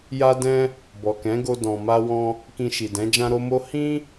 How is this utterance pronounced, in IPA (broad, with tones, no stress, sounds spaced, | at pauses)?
j a˦ d ɛ̃˦ | b ɔ˨ k ɛ̃˨˦ ɡ o˧ d ɔ̃˨ m a˧ w ɔ̃˧ | k ĩ˧ ʃ i˨ d ɛ̃˨˦ d͡ʒ ã˦ ɾ o˦ m o˦ h ĩ˦